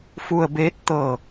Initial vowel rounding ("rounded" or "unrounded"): rounded